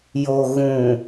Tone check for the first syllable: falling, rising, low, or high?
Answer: low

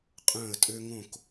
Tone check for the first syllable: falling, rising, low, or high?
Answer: falling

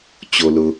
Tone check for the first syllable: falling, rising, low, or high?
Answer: low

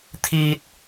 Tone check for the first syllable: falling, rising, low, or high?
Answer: high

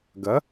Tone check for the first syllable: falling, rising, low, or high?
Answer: rising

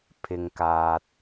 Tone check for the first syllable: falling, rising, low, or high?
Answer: high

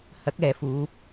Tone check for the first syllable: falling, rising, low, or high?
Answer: rising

